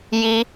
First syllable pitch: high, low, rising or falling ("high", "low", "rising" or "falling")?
high